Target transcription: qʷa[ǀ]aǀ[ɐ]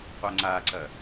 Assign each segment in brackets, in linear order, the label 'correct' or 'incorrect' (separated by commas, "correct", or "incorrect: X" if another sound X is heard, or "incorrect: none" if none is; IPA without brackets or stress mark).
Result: incorrect: ŋ͡ǀ, correct